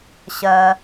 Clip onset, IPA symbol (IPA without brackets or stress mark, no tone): ɕ